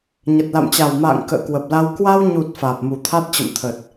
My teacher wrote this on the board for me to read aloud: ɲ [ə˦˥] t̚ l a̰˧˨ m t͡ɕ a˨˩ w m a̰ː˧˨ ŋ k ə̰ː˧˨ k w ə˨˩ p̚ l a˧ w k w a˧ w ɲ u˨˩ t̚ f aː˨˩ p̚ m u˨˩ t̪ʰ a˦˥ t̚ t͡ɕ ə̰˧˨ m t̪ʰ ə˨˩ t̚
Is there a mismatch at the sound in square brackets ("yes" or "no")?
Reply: yes